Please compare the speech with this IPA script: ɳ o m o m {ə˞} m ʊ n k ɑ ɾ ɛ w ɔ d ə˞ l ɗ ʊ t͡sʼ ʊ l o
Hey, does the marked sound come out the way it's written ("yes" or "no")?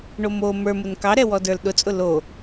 yes